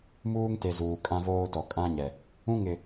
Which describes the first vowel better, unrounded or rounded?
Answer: rounded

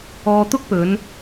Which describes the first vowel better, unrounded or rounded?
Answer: rounded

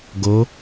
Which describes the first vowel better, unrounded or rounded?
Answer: rounded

